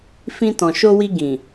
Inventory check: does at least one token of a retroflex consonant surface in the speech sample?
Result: no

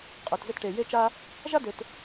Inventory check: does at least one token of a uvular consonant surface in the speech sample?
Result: yes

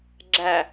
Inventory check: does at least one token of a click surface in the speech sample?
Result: yes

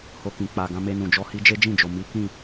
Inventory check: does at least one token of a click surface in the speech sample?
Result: no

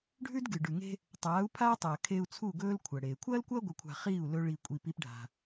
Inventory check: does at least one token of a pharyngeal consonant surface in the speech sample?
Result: no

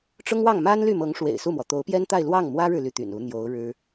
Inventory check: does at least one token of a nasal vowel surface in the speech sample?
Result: no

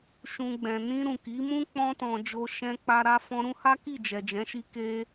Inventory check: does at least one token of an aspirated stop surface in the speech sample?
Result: no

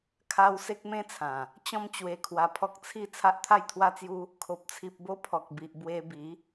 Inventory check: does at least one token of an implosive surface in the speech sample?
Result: no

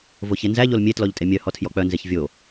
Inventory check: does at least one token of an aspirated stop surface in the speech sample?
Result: yes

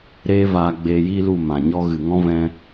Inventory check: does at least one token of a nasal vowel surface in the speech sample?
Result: yes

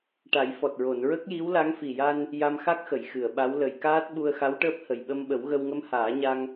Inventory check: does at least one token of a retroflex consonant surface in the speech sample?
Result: yes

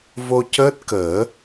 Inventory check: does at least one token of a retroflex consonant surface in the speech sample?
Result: no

